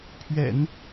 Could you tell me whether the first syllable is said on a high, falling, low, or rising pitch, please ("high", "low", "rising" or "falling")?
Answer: low